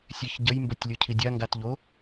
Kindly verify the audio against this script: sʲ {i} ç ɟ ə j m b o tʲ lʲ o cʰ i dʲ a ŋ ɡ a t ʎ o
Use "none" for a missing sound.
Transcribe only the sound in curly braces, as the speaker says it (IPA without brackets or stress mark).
e